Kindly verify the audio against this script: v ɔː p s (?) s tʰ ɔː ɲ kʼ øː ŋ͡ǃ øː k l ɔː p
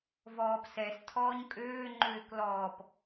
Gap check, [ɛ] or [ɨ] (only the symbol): ɛ